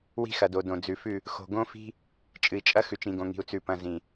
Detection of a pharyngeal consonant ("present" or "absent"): absent